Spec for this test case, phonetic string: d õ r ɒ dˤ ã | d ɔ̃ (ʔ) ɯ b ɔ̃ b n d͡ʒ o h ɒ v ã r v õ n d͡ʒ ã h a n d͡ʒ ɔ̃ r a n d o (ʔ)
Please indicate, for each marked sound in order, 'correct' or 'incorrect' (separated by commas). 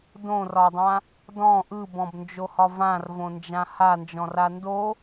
correct, incorrect